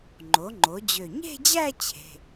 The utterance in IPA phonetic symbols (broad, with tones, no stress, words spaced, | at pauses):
ŋ͡ǃo˩˥ŋ͡ǃo˩˥d͡ʑø˧˩ ɲe̤˥˧d͡ʑæ˥˧ t͡ɕʰe̤˩˧˩